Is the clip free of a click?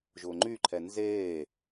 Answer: no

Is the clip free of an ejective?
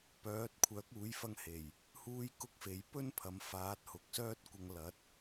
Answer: yes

